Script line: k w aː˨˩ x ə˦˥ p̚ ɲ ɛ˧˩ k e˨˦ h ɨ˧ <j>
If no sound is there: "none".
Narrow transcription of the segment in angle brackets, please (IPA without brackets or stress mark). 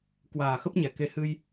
j